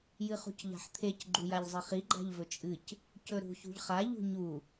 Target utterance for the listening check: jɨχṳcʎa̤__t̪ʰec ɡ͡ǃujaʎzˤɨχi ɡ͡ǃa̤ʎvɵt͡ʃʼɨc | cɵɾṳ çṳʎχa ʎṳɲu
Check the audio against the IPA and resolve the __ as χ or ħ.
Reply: ħ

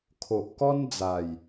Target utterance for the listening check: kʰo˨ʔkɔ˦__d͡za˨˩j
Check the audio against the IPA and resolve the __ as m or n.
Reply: n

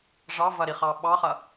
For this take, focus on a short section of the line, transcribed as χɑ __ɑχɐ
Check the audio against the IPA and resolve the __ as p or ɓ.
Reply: ɓ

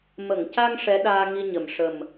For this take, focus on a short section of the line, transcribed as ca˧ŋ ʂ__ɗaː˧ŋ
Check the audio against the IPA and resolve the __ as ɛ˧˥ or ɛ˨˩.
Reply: ɛ˧˥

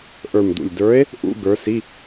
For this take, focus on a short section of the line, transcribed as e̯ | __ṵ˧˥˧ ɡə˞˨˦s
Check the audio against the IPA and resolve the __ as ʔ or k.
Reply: ʔ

